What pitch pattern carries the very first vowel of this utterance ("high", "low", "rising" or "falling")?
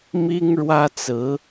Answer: high